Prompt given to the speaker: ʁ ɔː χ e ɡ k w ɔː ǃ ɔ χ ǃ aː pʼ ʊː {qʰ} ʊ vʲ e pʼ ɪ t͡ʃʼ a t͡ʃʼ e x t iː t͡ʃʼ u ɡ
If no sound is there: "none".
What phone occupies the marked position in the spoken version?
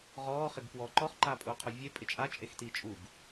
qʰ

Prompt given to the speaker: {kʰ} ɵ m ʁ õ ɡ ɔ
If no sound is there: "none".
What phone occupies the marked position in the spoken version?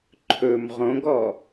ǃʰ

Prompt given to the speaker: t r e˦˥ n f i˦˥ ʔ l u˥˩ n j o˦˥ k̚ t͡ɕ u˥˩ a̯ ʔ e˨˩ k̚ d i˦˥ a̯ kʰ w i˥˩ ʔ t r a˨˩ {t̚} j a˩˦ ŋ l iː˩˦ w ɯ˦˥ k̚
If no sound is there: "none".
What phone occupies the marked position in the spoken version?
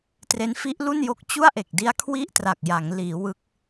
k̚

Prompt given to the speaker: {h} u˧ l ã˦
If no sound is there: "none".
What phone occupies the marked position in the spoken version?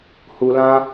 h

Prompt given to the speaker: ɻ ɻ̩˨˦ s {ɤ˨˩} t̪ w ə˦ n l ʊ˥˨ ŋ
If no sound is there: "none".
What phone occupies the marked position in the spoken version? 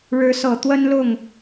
ɤ˨˩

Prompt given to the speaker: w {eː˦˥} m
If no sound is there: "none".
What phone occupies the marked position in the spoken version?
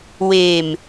eː˧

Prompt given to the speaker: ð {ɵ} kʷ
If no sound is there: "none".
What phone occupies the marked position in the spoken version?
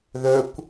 ɵ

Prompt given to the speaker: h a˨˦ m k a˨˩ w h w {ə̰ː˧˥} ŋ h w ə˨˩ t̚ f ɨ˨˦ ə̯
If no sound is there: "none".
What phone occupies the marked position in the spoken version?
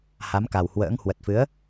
ə̰ː˧˥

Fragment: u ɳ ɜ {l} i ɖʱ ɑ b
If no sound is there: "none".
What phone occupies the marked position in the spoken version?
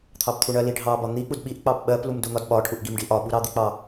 l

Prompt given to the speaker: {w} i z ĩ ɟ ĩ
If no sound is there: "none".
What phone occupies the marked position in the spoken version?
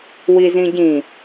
w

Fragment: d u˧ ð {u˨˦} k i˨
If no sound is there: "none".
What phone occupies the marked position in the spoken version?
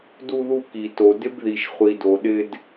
u˧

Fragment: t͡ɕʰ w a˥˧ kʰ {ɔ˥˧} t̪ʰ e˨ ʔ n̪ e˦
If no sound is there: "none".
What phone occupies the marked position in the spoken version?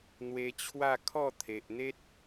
ɔ˥˧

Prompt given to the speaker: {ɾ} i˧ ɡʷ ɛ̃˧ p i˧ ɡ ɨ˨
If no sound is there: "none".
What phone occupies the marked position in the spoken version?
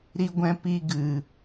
ɾ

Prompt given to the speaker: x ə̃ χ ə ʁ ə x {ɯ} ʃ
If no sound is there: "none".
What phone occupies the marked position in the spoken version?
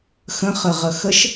ə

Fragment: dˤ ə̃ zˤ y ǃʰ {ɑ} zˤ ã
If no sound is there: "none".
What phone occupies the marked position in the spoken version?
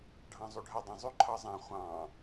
ɑ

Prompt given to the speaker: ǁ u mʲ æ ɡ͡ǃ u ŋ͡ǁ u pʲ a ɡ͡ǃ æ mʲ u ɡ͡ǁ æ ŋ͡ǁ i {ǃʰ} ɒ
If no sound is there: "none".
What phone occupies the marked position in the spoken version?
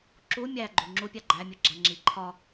ǃʰ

